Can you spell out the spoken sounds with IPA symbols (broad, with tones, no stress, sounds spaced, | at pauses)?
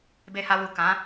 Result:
b e˧ h a˧ w u˨ k ã˨˦